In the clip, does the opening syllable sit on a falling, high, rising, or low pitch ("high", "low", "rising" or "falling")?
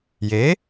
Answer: rising